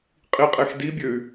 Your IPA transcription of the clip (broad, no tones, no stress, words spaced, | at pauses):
qʼiqʼexdibʲøy̯